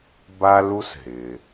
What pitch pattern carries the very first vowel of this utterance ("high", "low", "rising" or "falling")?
high